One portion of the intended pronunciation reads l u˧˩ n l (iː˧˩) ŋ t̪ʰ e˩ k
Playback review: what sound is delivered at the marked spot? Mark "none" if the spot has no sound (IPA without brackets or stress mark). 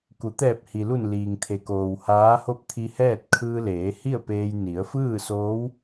iː˩